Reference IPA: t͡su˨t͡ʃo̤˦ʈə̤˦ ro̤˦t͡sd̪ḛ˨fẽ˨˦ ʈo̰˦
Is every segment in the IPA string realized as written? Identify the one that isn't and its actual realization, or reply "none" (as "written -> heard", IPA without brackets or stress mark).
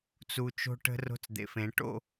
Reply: none